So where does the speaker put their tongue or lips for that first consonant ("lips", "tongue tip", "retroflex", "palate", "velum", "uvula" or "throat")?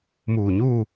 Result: lips